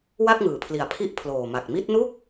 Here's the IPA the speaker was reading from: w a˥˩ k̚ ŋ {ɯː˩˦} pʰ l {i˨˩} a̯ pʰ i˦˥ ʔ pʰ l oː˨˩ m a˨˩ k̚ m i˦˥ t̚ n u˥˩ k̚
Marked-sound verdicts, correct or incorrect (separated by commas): correct, correct